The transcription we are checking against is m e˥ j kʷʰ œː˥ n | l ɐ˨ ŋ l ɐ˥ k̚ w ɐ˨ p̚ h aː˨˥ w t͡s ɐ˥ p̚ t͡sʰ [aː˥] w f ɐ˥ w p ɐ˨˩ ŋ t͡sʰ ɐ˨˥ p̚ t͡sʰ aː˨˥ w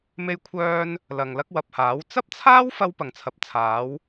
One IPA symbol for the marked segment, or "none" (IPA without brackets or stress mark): aː˥